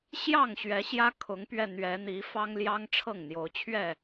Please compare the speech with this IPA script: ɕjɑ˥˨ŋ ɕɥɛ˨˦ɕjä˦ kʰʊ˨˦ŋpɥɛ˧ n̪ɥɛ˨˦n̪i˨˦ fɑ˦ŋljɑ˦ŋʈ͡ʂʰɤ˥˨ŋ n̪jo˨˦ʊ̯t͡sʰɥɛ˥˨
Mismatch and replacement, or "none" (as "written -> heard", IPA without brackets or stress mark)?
t͡sʰ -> t͡ɕʰ